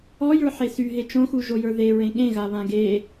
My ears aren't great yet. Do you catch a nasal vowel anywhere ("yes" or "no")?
yes